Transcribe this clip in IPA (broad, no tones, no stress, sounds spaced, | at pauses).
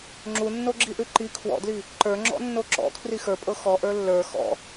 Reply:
ŋ͡ǁ u nː o ɡ͡ǁ i ʔ ʉ ǃ i kʰ w ɔ̰ d l i | ǃ ə˞ ŋ͡ǁ ɔ̰ nː o ǁ ɔ̰ kʰ r i x ə˞ pʼ ɤ x ɔ ʔ ə˞ lː ə˞ x ɔ̰